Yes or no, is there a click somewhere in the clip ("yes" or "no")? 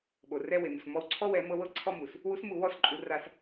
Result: yes